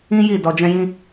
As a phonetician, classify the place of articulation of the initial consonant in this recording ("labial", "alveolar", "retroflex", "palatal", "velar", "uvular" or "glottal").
palatal